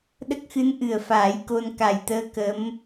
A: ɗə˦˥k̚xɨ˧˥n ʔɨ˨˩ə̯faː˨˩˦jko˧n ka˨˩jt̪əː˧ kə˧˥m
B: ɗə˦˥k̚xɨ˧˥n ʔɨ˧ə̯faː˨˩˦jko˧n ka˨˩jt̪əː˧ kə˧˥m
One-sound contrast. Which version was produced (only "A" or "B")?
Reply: A